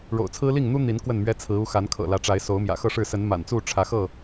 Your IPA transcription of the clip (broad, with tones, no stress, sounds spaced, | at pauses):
ɻ o̰˨˩ ʊ̯ t͡sʰ ɹ̩˦ l i˥˨ ŋ n̪ u˦ n̪ i˨˦ n k w ə˥˨ n m ɥ ɛ˦ t͡sʰ ɹ̩˨˦ u˨˦ x a˨˦ n kʰ ɤ̰˨˩ l ä˨˦ ʈ͡ʂ a˨˦ ɪ̯ s o˨˦ ʊ̯ m j ä̰˨˩ x ɤ˥˨ ʂ ɻ̩˥˨ s ə˨˦ n m a̰˨˩ n t͡s u˥˨ ʈ͡ʂʰ ä˨˦ x ɤ˥˨